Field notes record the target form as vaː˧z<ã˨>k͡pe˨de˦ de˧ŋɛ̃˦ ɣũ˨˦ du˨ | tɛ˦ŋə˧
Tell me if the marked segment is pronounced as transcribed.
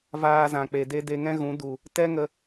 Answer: yes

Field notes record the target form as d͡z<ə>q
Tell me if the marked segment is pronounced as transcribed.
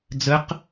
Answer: yes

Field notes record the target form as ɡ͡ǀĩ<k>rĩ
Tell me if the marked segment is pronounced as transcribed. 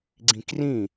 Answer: yes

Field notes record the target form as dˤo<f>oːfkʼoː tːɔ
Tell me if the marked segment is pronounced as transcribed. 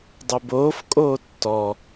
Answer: no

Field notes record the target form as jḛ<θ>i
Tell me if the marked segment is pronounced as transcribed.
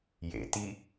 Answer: no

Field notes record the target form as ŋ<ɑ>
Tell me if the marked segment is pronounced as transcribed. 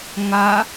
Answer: no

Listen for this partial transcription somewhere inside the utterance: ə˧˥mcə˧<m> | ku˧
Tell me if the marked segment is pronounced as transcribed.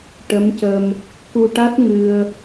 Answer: yes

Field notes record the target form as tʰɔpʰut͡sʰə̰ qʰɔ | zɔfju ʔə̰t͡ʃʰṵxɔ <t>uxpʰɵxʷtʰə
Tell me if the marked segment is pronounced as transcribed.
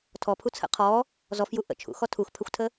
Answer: no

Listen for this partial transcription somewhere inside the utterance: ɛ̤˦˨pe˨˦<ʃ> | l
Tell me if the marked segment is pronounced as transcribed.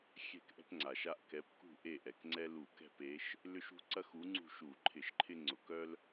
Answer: yes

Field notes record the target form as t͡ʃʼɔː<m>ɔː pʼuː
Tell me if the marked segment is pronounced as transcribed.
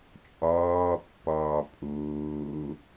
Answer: no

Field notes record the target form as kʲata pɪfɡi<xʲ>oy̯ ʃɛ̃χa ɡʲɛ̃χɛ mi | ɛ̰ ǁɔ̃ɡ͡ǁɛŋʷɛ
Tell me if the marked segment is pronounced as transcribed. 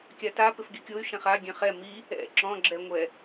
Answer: no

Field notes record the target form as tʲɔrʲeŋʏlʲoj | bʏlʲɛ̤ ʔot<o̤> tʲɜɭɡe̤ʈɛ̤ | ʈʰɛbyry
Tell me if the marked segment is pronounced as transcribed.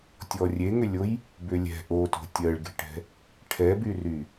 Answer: yes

